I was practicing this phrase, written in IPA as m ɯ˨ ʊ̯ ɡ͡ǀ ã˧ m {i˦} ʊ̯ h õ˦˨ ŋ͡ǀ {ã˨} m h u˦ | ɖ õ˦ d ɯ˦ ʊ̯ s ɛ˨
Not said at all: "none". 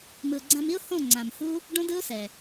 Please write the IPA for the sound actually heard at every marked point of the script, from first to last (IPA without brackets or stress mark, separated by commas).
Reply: i˦, ã˨